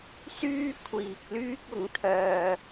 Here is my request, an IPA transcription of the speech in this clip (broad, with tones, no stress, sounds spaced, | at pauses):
s yː˧ kʷʰ iː˨ k̚ l yː˧ k̚ ʊ˨˥ ŋ t̪ʰ œː˧